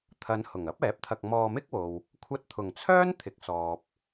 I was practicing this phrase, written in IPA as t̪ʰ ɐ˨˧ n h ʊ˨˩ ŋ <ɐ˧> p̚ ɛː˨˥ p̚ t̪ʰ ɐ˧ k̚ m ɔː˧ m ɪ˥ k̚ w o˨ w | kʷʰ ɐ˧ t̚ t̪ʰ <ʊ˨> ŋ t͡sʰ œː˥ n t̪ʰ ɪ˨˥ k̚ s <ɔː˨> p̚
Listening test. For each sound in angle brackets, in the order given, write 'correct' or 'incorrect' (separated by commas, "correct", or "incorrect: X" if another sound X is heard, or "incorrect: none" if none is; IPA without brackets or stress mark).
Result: incorrect: ɐ˥, incorrect: ʊ˨˩, correct